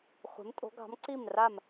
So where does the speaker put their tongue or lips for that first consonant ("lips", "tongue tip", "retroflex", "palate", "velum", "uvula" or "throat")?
uvula